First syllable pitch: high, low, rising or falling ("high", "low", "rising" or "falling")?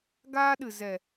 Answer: high